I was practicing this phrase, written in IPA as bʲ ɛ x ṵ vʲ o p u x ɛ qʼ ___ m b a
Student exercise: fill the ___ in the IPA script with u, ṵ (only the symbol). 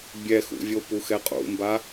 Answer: ṵ